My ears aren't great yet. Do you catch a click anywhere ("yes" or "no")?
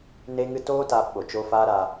no